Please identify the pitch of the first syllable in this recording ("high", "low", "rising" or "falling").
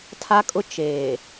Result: high